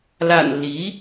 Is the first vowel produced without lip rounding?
yes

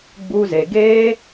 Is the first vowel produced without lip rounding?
no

